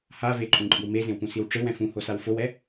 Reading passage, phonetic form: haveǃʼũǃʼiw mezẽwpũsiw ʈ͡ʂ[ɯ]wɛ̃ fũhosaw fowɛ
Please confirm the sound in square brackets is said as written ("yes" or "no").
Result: yes